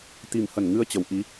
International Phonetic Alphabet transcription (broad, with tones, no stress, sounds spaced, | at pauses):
t̪ i˨˩ m h ə˧˩ n ŋ ɨ˧ ə̯ t͡ɕ ə˧˩ w ʔ i˨˦